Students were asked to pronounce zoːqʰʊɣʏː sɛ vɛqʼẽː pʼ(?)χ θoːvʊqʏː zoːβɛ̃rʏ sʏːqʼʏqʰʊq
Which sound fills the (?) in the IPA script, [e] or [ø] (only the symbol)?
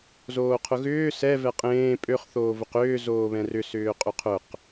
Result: ø